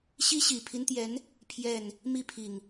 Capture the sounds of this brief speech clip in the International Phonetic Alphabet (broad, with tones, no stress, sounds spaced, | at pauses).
ɕ i˦ ɕ i˨˩ pʰ i˦ n t̪ j ɛ˨˦ n | pʰ j ɛ˥˨ n | m i˥˨ pʰ i˨˩ ŋ